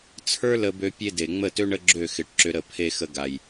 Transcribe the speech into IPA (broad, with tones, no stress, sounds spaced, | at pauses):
t͡sʰ ə˞˦ l ə˧ b ø˧ pʲ e˦ d e˨ ŋ͡m ə˦˨ t ø˦ ɳ ə˦ ɡ͡ǁ ø˦˨ x ɪ˨˦ ʈ ǁ ʏ˧ ɾ ə˦˨ pʰ e˧ x ə˧ ɡ a˨ j